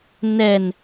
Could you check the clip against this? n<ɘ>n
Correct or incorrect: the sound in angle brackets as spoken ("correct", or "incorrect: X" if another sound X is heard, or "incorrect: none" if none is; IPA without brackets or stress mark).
incorrect: ɛ